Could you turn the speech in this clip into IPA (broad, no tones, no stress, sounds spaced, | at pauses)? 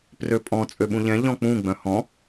p r ø pʼ ɔ̃ t͡sʼ ø ɓ ũ ʎ ɛ̃ ʎ ɔ̃ k͡p ũ ɡ͡b œ̃ h ɔ̃